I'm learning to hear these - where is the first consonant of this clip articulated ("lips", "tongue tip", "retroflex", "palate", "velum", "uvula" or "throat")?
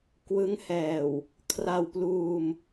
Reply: velum